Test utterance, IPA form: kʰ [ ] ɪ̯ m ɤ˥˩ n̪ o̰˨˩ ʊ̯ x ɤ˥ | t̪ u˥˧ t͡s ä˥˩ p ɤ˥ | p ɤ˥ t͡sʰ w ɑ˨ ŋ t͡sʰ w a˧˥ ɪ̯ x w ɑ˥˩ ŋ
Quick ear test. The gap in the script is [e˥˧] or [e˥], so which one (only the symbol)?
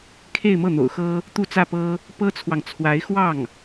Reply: e˥˧